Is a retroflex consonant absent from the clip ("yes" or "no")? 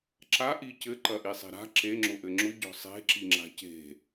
yes